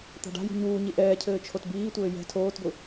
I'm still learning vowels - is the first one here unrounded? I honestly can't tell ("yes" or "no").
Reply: yes